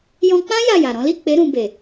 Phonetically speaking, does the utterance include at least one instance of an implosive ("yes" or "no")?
no